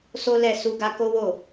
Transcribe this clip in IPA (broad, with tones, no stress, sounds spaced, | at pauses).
s o˦ l ɛ˦˨ s u˧ ɡ a˦ k o˦ w o˦˨